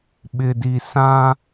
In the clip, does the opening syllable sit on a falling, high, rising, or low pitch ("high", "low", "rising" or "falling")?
low